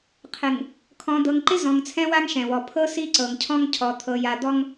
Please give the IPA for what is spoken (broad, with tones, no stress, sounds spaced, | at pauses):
qʰ ɪ˨ ŋ | kʰ ɔ̃˨ d̪ ɤ˨ ŋ ǃ ɪ˦ z ɔ̃˨ ŋ t͡sʰ ɛ̃˦ w a˦ ŋ ʃ ɛ̃˨ w ɔ˨ pʰ ɤ˦ s i˦ ǀ ɤ˨ ŋ cʰ ɔ̃˦ ŋ cʰ ɔ˨ t̪ʰ ɤ˨ j a˨ d̪ ɔ˦ ŋ